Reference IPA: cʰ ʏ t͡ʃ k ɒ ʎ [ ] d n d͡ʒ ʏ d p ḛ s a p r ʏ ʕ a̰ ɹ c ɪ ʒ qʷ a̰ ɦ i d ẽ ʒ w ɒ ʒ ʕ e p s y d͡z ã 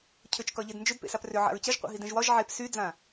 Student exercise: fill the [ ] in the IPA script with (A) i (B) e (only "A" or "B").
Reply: B